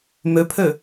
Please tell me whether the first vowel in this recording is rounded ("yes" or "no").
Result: yes